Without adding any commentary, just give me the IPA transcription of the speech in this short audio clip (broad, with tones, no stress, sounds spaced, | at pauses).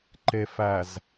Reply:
ǃ e˨ f æ˨ z